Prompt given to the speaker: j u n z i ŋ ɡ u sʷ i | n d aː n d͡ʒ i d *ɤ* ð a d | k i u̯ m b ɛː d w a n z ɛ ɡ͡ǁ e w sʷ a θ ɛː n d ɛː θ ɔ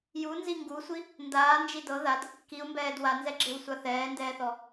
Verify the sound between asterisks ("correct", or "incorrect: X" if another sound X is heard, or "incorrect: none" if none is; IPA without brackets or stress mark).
correct